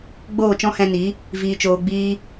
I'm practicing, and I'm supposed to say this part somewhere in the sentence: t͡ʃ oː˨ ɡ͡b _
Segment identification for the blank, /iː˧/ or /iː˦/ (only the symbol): iː˧